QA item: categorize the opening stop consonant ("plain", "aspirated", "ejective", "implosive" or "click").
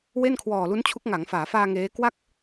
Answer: aspirated